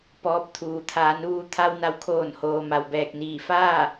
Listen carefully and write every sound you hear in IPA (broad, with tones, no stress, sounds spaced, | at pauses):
p ɔː˧ p̚ t̪ʰ uː˩ t̪ʰ aː˩˧ n ʋ uː˧ t̪ʰ a˧ w n a˩˧ w kʰ oː˧˩ n h oː˩ m a˩ w b ɛː˧˩ k̚ n iː˧˩ f aː˥˨